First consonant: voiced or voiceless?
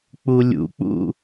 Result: voiceless